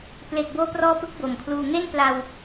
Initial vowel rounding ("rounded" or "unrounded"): unrounded